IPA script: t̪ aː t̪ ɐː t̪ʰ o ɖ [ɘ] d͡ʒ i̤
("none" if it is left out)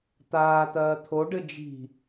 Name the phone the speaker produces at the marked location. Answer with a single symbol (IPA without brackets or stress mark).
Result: ɘ